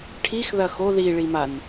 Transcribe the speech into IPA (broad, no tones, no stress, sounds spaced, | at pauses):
ʈʰ i x ð ɐ x o ð i ɭ i m a n